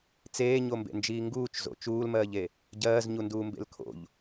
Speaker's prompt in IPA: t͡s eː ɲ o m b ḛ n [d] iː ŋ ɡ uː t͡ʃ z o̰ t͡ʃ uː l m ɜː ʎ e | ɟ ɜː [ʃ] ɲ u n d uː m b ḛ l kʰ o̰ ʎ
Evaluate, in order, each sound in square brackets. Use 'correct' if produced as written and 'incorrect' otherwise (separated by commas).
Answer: incorrect, incorrect